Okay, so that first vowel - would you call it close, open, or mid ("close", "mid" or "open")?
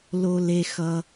mid